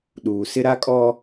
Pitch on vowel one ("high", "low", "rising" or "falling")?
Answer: low